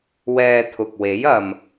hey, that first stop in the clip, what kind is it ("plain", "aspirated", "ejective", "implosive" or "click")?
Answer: aspirated